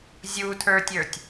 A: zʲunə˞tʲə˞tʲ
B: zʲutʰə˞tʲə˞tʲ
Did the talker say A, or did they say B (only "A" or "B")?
B